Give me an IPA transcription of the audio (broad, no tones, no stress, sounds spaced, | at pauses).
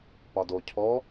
p ɒ d o cʰ ɔ